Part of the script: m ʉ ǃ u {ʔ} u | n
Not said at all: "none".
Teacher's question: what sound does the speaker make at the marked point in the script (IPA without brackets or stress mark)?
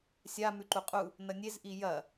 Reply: qʼ